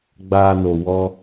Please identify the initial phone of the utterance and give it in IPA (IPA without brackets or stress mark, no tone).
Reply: ɡ͡b